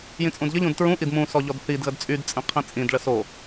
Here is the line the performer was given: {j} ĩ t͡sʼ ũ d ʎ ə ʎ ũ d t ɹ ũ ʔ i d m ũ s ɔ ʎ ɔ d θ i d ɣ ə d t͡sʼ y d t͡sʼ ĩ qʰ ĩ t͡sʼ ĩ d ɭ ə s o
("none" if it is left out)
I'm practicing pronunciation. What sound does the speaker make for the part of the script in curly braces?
j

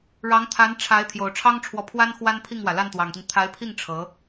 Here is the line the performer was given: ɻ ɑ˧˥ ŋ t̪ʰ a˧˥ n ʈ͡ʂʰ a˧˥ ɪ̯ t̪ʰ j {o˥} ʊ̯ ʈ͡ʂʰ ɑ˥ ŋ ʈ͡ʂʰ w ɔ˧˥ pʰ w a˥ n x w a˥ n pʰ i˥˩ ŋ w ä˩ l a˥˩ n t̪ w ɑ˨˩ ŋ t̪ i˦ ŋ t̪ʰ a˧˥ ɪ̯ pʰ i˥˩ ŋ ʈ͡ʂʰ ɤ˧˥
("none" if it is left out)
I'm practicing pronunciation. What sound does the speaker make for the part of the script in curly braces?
o˨˩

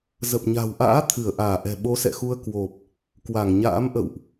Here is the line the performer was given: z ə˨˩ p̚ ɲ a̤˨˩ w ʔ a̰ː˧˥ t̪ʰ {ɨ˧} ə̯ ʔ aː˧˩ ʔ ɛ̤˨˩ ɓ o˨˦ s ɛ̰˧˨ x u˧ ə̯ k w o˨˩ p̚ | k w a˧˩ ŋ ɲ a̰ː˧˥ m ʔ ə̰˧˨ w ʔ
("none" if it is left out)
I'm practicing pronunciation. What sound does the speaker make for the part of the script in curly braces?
ɨ˧˩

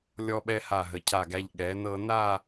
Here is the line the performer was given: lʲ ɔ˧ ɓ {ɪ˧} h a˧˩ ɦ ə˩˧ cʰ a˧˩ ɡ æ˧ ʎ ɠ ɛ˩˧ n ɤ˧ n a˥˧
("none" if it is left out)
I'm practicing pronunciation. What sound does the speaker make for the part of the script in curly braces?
ɛ˧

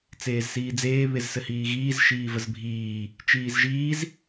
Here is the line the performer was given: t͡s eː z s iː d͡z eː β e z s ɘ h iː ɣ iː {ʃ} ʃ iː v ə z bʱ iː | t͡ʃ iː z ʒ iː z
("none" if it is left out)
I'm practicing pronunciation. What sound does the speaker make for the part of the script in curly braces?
z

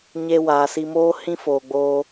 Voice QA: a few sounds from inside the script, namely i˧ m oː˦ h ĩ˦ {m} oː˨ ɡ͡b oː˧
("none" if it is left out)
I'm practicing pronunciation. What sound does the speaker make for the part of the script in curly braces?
f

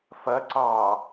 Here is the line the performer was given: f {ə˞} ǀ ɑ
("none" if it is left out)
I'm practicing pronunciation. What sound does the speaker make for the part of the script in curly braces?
ɐ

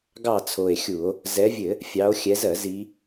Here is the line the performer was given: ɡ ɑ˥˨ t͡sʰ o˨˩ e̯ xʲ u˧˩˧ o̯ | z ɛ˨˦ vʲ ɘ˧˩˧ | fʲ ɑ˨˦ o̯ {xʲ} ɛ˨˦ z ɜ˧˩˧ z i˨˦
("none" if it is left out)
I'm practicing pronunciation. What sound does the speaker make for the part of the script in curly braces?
xʲ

